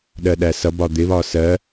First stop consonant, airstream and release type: implosive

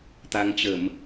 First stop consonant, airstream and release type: plain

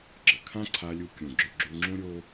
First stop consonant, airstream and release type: click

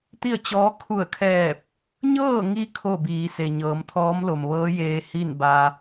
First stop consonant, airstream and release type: plain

